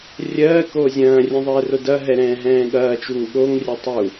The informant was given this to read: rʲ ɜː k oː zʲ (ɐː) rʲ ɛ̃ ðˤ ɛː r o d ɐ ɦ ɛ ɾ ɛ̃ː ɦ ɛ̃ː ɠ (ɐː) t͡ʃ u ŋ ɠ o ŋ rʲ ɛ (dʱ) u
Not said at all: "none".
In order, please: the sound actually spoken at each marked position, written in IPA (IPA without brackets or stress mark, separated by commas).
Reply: ɐ̃ː, ɐː, tˤ